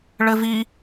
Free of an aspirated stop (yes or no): yes